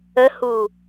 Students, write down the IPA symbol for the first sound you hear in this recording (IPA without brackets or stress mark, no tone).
ə